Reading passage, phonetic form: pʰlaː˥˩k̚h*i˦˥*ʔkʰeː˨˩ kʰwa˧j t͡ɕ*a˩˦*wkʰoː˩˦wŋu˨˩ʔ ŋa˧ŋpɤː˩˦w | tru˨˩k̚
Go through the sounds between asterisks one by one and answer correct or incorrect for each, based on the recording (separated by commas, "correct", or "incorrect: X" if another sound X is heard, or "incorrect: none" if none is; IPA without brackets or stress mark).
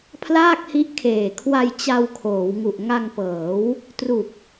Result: correct, incorrect: a˧